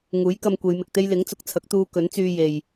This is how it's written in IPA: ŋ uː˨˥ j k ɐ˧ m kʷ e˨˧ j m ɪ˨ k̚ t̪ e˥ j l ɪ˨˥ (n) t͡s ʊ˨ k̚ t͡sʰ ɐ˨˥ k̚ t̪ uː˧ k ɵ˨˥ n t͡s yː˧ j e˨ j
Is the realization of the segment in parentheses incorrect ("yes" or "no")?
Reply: yes